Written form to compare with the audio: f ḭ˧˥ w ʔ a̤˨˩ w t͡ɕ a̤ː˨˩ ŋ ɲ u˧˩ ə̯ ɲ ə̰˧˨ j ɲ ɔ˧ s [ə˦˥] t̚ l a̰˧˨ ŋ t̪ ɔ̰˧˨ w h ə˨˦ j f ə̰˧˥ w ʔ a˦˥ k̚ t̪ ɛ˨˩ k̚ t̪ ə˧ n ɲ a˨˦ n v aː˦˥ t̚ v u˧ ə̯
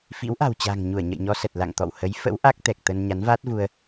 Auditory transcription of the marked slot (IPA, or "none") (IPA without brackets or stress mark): ə˨˩